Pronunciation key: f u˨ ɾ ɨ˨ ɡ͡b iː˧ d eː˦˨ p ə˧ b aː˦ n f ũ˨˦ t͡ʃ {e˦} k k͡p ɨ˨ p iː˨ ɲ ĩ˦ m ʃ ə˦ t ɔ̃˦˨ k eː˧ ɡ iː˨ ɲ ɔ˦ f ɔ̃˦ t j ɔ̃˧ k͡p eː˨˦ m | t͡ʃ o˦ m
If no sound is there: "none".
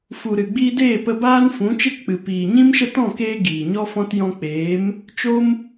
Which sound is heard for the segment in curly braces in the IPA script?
e˦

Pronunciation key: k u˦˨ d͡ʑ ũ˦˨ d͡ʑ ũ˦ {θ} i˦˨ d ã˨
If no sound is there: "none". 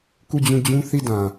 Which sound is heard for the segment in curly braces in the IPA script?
θ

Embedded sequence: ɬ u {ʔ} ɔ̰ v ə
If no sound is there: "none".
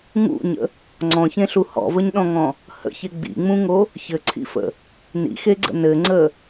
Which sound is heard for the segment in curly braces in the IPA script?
h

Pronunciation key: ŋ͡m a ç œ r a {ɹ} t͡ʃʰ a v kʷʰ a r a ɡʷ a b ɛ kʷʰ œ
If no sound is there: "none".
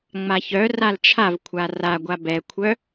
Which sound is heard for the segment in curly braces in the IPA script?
l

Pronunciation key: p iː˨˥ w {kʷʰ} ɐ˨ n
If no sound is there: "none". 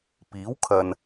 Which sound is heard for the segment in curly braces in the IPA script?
kʰ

